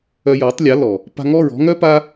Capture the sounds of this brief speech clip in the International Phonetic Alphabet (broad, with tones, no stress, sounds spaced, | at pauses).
œ˧ j ɔ˨˦ tˤ lʲ a˨˦ l ɔ˨ | p a̤˧ ŋ ɔ˦˨ ɹ ɔ̤˦ ŋ œ˦ p a˦